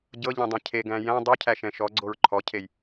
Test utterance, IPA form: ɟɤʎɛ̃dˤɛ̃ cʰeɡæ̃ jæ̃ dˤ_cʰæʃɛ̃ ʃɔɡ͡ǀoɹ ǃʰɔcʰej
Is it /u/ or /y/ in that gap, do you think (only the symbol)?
y